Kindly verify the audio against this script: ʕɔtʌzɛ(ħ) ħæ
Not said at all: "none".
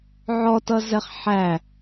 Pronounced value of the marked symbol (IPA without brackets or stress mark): χ